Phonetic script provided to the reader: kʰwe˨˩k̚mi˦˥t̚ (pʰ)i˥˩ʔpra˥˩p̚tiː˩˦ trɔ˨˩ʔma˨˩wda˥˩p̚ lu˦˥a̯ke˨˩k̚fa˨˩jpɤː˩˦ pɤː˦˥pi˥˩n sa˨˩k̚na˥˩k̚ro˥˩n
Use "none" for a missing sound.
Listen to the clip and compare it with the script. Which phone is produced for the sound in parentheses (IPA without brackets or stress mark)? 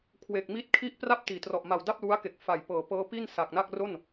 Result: kʰ